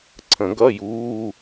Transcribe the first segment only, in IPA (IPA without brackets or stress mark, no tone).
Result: ǀʰ